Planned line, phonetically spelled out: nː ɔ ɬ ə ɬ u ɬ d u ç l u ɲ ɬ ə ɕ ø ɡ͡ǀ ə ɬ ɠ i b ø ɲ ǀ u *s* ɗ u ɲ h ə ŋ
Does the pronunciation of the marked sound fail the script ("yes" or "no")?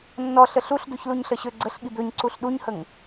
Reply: yes